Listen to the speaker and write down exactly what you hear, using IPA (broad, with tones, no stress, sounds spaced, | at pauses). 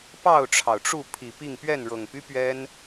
p ɑ˥˨ ʊ̯ ʈ͡ʂʰ ɑ˩ ʊ̯ ʈ͡ʂ u˥˨ pʰ i˨˩ p i˥˨ ŋ p ɥ ɛ˥˨ n ɻ ɤ˨˩ ŋ p y˦ p ɥ ɛ˦ n